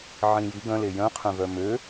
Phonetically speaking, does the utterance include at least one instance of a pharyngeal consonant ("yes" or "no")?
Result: yes